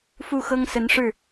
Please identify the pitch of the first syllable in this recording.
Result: falling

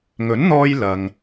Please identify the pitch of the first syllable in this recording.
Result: rising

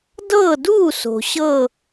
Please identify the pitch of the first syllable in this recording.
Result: falling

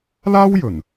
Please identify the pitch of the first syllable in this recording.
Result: high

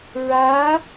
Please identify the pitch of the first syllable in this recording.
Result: rising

